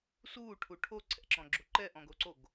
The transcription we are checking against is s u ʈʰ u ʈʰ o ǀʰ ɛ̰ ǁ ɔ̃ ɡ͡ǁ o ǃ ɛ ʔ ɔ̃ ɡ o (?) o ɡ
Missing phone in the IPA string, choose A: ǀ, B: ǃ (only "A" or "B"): A